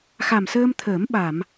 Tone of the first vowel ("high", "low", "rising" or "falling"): low